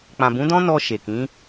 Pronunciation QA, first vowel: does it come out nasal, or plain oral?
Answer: nasal